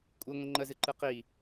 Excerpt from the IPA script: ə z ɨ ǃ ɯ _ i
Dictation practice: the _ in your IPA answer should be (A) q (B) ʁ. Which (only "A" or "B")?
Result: A